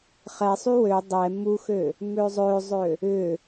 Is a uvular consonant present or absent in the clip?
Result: present